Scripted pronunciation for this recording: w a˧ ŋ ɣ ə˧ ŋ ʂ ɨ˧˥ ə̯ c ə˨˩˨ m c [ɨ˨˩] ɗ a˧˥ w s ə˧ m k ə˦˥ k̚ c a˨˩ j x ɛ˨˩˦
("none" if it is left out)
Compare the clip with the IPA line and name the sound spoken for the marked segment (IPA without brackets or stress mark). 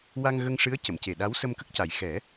e˨˩